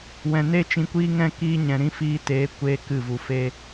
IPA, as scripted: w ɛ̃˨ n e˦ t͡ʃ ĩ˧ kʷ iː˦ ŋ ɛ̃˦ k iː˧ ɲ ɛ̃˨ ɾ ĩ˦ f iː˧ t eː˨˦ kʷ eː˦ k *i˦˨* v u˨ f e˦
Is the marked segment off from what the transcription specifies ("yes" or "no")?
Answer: yes